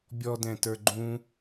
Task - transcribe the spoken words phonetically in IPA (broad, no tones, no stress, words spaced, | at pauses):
bʲɔdɛ̃tə˞ ɡ͡ǃũ